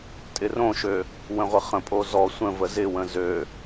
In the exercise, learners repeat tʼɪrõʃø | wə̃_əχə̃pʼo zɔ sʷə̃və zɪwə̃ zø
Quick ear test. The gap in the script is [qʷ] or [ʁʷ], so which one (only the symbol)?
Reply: ʁʷ